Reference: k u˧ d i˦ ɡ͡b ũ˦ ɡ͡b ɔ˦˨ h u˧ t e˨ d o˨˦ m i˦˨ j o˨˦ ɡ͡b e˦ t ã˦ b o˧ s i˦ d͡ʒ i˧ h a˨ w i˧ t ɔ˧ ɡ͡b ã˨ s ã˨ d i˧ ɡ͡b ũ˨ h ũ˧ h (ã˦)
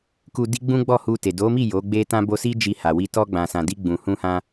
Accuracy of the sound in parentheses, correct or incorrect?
incorrect